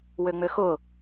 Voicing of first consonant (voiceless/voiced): voiced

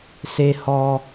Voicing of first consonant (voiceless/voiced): voiceless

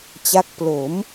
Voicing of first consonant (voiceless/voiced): voiceless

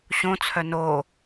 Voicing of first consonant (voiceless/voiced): voiceless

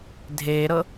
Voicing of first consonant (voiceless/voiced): voiced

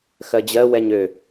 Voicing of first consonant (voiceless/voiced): voiceless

